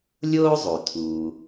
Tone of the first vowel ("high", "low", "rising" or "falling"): high